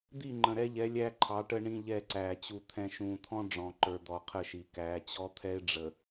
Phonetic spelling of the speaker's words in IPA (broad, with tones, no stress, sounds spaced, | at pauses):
d̪ i˦˨ ŋ͡ǃ ə̃˨ ɾ ɛ˦ ʎ ɛ˨˦ lʲ æ˦ ǃʰ ɑ˨˦ ʈ ə˦ ɳ ĩ˦ ʎ ɛ˦˨ ǀ æː˨ t͡ɕ u˨ t̪ʰ ɛ̃˨ ʃ ũː˨ t̪ʰ ɔ̃˦ ɖ͡ʐ ɔ̃˨ ǃ ə˞˨ d̪ ɔ˨ qʰ ə˦˨ ʃ i˨ k æː˨˦ t͡ɕ ɔ˦ t̪ʰ ɛ˦ ɪ̯ ɖ͡ʐ ə˨